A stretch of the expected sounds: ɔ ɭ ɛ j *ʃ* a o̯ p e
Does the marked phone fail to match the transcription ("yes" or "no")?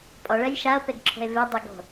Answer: no